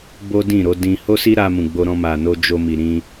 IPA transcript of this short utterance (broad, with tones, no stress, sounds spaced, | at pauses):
b o˦ d ĩ˦˨ ɾ o˨˦ d ĩ˧ h o˦ s i˦ ɾ a˧ m ũ˨ ɡ͡b o˧ ɾ ɔ̃˧ m a˨ n o˧ d͡ʒ o˧ m i˨ ɾ ĩ˧